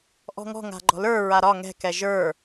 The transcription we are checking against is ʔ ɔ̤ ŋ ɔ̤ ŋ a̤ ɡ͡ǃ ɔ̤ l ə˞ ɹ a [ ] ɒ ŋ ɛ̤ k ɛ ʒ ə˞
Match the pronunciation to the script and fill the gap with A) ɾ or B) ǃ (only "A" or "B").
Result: A